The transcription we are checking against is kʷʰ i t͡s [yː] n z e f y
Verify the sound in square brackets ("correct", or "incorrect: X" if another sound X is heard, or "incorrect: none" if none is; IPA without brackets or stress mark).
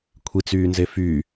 correct